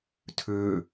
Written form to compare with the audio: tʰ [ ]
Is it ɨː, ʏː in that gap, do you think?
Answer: ʏː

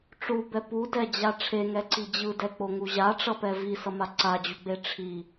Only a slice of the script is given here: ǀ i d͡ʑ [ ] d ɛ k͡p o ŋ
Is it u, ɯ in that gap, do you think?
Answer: ɯ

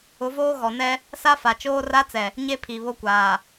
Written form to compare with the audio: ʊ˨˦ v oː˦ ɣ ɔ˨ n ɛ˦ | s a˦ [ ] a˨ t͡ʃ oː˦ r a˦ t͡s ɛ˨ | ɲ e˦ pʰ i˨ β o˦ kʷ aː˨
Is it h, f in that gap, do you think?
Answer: f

